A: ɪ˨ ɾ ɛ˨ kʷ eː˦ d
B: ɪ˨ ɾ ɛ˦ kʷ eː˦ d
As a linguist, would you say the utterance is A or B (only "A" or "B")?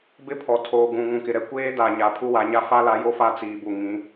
A